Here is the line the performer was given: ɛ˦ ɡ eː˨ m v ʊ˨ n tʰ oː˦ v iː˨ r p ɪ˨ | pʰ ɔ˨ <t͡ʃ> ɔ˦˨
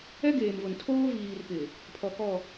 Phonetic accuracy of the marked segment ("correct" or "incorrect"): incorrect